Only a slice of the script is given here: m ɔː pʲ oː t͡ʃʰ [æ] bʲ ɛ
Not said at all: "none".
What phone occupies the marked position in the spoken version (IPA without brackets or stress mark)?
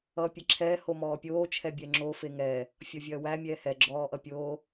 ɛ